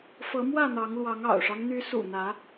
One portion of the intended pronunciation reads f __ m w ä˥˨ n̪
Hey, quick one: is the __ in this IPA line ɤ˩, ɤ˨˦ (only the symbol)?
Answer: ɤ˨˦